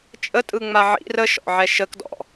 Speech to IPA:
t͡ʃʼ ə tʼ ɯ ŋ͡m a ʕ ḭ r ə ʃ ɔ̰ ʕ ɛ ʃ ə k d ɔ̰

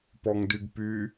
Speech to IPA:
p ɔ ŋ d y ɡ p y

